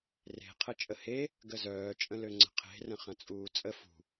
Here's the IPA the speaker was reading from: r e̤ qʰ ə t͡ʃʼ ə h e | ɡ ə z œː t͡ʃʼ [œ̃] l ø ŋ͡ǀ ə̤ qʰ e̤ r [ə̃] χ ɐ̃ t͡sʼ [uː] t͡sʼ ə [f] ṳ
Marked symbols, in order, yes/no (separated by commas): no, yes, yes, yes